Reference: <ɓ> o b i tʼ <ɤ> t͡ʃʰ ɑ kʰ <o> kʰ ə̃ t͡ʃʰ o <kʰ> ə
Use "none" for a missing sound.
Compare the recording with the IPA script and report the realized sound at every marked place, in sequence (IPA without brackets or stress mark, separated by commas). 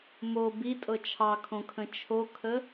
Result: m, ɤ, õ, kʰ